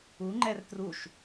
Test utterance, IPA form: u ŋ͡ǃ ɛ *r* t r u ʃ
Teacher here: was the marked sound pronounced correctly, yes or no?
yes